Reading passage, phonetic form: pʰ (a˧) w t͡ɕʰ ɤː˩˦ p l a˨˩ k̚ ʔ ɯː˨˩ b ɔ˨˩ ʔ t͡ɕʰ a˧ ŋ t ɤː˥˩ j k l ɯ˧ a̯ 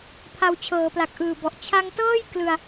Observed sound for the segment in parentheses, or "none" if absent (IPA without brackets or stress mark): a˧